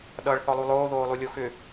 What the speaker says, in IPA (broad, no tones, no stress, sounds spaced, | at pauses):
ɗ ʌ ɭ θ ɔ lˠ u lˠ oː ð oː lˠ u lʲ o x ʏ